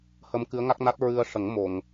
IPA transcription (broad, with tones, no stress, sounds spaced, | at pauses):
h ə˧ m k ɨ˧˥ ə̯ ŋ a˦˥ k̚ n a˦˥ t̚ ɹ ɨ˧ ə̯ ʂ ə˨˩˦ ŋ m o˨˩˨ ŋ